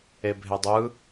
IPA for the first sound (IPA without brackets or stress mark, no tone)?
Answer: e